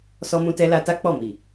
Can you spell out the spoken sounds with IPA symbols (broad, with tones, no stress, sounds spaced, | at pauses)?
s ɔ˧ m ũ˧ t ɛ˧ l a˧ t a˦ k͡p ɔ˦˨ m i˨